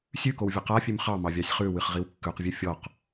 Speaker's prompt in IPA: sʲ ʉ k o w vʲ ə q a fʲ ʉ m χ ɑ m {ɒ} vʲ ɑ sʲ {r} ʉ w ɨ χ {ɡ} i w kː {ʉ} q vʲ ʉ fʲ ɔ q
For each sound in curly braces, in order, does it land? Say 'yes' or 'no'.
no, no, no, yes

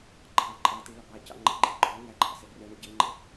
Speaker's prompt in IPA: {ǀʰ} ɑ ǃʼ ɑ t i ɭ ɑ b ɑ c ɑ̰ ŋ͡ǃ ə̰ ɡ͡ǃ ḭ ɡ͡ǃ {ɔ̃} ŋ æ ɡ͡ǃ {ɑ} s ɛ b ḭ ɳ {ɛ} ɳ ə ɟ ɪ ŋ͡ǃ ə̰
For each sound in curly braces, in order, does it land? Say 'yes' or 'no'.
no, no, no, no

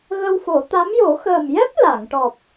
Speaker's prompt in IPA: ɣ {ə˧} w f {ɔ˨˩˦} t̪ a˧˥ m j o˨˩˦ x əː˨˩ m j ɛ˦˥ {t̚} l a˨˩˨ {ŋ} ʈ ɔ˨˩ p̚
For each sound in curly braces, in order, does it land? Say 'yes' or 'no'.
yes, no, no, yes

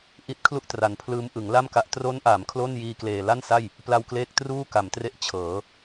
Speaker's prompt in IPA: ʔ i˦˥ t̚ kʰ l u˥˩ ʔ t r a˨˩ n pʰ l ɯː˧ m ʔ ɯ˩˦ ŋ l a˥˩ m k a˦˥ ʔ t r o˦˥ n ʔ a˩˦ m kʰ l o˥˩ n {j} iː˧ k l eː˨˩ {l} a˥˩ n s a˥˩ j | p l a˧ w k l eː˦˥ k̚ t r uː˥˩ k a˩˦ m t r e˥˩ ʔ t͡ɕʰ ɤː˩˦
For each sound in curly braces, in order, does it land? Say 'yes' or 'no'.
yes, yes

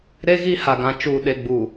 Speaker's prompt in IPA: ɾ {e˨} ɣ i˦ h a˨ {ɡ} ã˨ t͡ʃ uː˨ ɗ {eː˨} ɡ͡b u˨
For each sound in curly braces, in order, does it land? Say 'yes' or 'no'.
no, yes, no

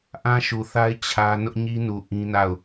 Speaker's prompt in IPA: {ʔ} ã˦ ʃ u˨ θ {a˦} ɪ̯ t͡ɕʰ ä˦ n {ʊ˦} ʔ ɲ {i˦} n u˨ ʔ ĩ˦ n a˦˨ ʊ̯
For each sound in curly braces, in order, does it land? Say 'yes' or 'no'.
yes, yes, yes, yes

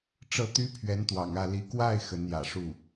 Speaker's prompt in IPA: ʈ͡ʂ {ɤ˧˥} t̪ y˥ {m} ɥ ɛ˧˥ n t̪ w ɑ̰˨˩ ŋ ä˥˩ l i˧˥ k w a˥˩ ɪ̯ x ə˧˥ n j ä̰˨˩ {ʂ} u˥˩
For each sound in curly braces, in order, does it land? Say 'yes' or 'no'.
no, no, yes

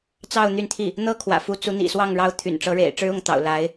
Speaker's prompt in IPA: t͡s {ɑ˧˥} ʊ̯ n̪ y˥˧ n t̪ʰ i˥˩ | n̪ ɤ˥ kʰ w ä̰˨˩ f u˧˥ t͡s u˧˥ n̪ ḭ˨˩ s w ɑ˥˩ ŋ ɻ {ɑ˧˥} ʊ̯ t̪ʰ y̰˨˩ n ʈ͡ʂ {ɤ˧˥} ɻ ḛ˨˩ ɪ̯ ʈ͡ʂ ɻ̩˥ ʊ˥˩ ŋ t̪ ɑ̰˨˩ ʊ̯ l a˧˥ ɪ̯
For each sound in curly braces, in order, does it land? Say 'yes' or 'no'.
no, yes, yes

